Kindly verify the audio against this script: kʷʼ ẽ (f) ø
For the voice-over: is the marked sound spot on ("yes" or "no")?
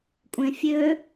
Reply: no